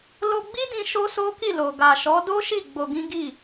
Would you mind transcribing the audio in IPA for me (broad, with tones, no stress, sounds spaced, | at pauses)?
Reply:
l o˧ ɡ͡b i˦ d ĩ˧ ʃ o˦ s o˦ k i˦˨ l o˨ ɡ a˨ ʃ ɔ˨˦ d o˦ ʃ i˦˨ ɡ͡b o˧ ɡ ĩ˦ ɡ i˦˨